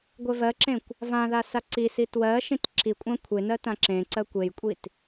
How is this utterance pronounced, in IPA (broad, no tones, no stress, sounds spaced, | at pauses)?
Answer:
ɡʷ e v ɜ ǁ ẽ kʷ | v ã ð a s a ǀ i s i t w ɜ ʃ ĩ t ǁ i kʷʼ ã kʷʰ e n ɜ t ã ǁ ẽ ǀ ɜ kʷ e j kʷʼ i t